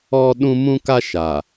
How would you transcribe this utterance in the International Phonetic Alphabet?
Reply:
ɔ˦ ɗ ũ˦ m ũ˦ k a˦ ʃ a˨

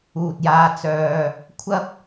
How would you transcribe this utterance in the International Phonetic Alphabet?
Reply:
uː˨ t̚ j aː˧ t͡s œː˧ | kʷʰ ɐ˥ p̚

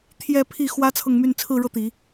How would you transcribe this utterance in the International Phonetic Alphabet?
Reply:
t̪ʰ j ɛ˥˧ pʰ i˥˩ x w ä˥ t͡sʰ ɤ˥˧ ŋ m y˥˧ n t͡sʰ ɹ̩˥˧ ɻ ɤ˥˩ t̪ i˨˩˦

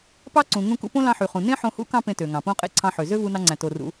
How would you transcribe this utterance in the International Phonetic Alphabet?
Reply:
p ɑ˥ ǀ ũ˩ ŋ ũ˧ k ṵ˧ p õ˥ l ɑ̃˧ ħ y˩ χ ũ˩ n ẽ˥ ħ õ˧ h ṵ˥ k ɑ̃˥ p ẽ˧ t ø˩ ŋ ɑ̃˩ p õ˧ qʼ ḛ˧ ǀʰ ɑ̃˧ ħ ø˩ z ø˥ v u˧ n ɑ˧ ŋ͡ǀ æ̃˩ t o˩ r ṵ˩

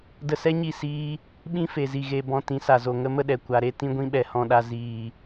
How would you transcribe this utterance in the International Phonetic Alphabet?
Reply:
d ə˧ s ɛ˦ ɲ i˦˨ s iː˦ | ɓ ĩ˦ f e˨ z i˨ ɣ e˨ b ɔ̃˧ t ĩ˨˦ s a˨ z o˨ ŋ ə˧ m ə˧ ɗ ɛ˨ kʷ a˨ ɾ e˧ t ĩ˧ ɡʷ ĩ˧ ɓ ɛ˨ h ɔ̃˨ ɗ a˨ z iː˨

